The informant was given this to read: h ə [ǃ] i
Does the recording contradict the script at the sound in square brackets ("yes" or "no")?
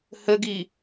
yes